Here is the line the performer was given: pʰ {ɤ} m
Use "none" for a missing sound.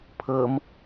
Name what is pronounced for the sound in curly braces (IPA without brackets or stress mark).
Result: ɤ